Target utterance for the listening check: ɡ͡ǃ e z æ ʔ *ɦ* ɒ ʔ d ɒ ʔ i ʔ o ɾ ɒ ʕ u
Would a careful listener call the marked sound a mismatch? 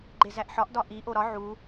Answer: yes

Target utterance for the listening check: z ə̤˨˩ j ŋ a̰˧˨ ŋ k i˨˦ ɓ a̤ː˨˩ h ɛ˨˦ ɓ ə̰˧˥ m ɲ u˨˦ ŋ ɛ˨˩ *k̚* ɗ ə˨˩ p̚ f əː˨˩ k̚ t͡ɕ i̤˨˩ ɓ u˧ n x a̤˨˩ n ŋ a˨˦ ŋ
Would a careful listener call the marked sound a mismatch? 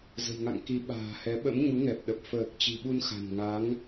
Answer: yes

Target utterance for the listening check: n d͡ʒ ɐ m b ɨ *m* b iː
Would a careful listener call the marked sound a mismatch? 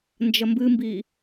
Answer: no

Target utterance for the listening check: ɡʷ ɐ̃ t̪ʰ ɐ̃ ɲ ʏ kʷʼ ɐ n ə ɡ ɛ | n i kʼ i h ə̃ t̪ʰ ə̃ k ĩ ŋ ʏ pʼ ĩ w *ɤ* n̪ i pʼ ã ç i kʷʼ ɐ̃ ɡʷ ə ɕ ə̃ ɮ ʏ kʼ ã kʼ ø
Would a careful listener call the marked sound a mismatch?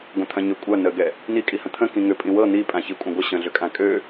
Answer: no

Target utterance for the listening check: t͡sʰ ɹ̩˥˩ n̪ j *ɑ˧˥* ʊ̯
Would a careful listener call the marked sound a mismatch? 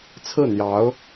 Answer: no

